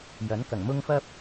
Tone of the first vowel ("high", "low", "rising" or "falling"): rising